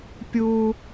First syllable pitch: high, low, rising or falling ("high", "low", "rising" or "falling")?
high